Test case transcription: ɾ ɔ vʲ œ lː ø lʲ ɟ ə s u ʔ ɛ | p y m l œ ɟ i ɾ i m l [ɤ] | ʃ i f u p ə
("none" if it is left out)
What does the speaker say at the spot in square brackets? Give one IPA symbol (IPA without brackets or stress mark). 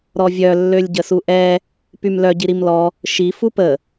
ɔ